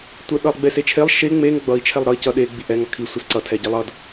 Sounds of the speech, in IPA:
tʷ ɛ ɗ ʌ lˠ ɡ͡b e s e t͡ʃʰ e lˠ ʃ e ŋ͡m e ŋ ɡ͡b ʌ i̯ t͡ʃʰ ɛ lˠ ɾ ʌ i̯ c ʌ ɗ e ɡ͡b i ʔ ɛ ŋ ʌ kʰ i sʷ i s ǀ ʌ tʰ ɛ ɟ e lˠ ʌ d

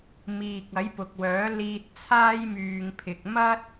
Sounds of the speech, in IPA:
m iː˨ k̚ ɐ˨˥ j p ʊ˨ k̚ w œː˨˥ l iː˧ t̚ t͡sʰ aː˥ j m yː˧ ŋ pʰ ɪ˧ k̚ m ɐ˥ t̚

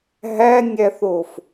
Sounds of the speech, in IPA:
ɦ æ nʲ æ θ o f

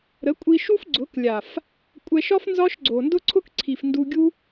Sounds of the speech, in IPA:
ɾ ə˨˦ kʷʼ i˧ ʃ u˦ f ɡ͡ǀ ʊ˨˦ k lʲ a˨ f | kʷʼ ɛ˧ ʃ ɒ˦ f n z ɒ˦ ʃ ɡ͡ǀ o˨ n d ʊ˦ ǀʰ ʊ˦ k ǀʰ i˨ f n d u˧ ɡʲ u˦

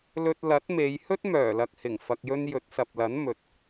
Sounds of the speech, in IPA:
l ɵ˧ t̚ l ɐ˨˥ t̚ m e˨˧ j h ɵ˥ t̚ m œː˨˩ l ɐ˨ k̚ h ɪ˨˩ ŋ f ɐ˨ k̚ j ɵ˧ n j ɵ˨˥ t̚ s ɐ˨ p̚ l ɐ˨˥ n m ɵ˨ t̚

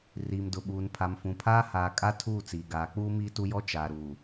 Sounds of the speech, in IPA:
r iː˨ m d ʊ˨ ɓ uː˨ n pʰ a˨ m f ũ˨ pʰ aː˦ h aː˨ kʼ a˦ tʰ uː˦˨ t͡s iː˨ ɡ aː˨˦ k͡p u˦ m iː˦ t u˦ j ɔ˦ t͡ʃ aː˨ ɾ uː˨

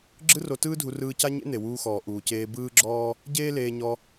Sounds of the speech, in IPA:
ɡ͡ǁ ɯ˥ r o˧ t ɯː˥ dʱ u˧ r ɯː˧ c a˥ ɲ ḛ˥ n̪ e˩ w uː˧ x ɔː˩ ʔ uː˩ c eː˧ b ɯː˥ ɡ͡ǁ ɔː˥ | ɟ eː˥ l eː˧ ɲ ɔ˧

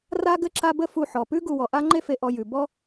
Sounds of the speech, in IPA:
r a˦ ɡ ɘ˦ ǁ a˦ b ə˦ f u˨ ħ ɔ˩ p ʉ˥ ɡ u˨ w ɔ˩ ʔ a˥ ŋ͡ǃ e˦ f e˨ ʔ ɔ˨ j ʉ˩ b ɔ˦

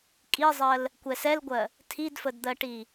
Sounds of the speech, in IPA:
kʼ i zˤ ɜ l | kʷ ɛ s ɛ l ɡʷ ɜ | tʰ i d f ə d d̪ ɜ ʈ i

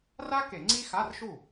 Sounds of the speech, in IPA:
r a˥ k e˧˩˧ ŋ͡ǀ i˥ x a˧˥˧ r ʃ u˥˩

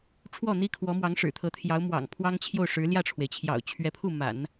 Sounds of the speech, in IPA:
ʈ͡ʂʰ w ɔ˥˩ n̪ i˥ kʰ w ɔ˧˥ m w ɑ˧˥ ŋ ʂ ɻ̩˨˩ t̪ʰ ɤ˧˥ t̪ʰ j ɑ˧˥ ʊ̯ m w ɑ̰˨˩ ŋ pʰ w ɑ˥ ŋ t͡ɕʰ j o˥˩ ʊ̯ ʂ ɻ̩˧˥ l j ä˥˩ ʈ͡ʂʰ w e˩ ɪ̯ t͡ɕʰ j ɑ̰˨˩ ʊ̯ t͡ɕʰ ɥ ɛ˧˥ pʰ u˥˩ m a̰˨˩˦ n

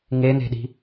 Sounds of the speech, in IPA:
ŋ e n̪ e̤ ɗ i̤

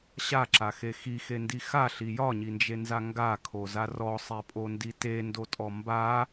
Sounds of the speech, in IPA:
ɕ a ǁ a x e x i x e n d i x a ɬ i j ɒ ɲ i n d͡ʒ e n z a ŋ ɡ a kʰ o z a r ɔ sˤ e pʼ o n d i t e n d o tʼ ɔ m b a

